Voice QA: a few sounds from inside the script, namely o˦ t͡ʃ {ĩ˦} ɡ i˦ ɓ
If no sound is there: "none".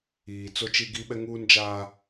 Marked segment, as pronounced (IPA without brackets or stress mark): i˦